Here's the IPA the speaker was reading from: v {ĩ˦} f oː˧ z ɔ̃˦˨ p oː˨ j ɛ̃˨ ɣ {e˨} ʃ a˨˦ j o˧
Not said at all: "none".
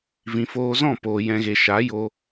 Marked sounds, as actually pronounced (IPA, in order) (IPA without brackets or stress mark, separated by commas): ĩ˨, e˨